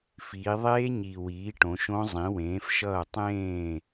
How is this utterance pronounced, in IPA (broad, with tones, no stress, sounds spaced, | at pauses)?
f iː˩˧ ðˤ eː˦˥ ɲ i˨˩ w iː˩˥ ʈ õ˩˧ ʃ õ˦˥ zˤ ĩ˩˥ w ẽː˩˥ f ʃ ʌː˥˩ tˤ ẽː˥˩